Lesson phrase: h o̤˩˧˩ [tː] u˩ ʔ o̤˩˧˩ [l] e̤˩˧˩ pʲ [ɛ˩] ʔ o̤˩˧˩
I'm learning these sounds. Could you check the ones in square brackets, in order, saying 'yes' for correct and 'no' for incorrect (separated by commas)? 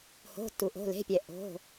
yes, yes, yes